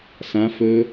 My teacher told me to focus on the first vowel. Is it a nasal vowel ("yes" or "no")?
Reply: yes